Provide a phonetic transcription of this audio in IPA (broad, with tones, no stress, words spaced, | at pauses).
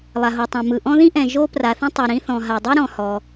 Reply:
lˠa˩ɦo˩tˤã˩ mɯ˩ʔɔ̃˥ ðĩ˥ʔɛ̃˩ ʒo˥pra˩θĩ˥ tˤi˩ɾĩ˥ θɔ̃˩ɦa˩dˤi˥ ɾɔ̃˩ hɔ˩